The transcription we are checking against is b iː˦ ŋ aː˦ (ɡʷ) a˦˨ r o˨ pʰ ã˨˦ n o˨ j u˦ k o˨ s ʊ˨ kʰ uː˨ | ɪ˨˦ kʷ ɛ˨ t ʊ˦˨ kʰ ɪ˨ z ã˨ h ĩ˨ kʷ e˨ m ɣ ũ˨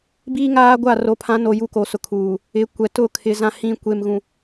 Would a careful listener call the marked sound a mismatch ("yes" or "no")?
no